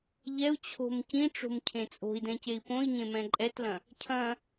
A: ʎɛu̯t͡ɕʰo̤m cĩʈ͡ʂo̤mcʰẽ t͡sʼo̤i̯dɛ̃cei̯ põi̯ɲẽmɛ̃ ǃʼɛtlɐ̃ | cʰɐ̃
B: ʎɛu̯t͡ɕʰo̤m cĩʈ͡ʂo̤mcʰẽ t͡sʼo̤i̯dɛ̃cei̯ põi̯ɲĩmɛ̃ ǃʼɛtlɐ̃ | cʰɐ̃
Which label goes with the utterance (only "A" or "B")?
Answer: A